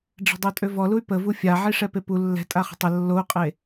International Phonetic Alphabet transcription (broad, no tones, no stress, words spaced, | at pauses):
ɖ͡ʐɛ̤dˤotʼøvɔ luy̯pəvu fʲaʕi ʂɛpepu lːɛ̤ tʼaχə̤tˤə lːou̯qʼe